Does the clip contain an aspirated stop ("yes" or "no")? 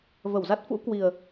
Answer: no